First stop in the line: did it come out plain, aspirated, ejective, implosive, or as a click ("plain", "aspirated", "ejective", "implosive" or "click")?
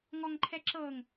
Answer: click